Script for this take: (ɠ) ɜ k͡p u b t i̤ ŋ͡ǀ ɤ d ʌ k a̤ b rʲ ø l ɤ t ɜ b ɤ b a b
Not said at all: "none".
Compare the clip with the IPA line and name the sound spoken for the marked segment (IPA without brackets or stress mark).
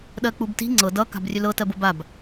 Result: ɗ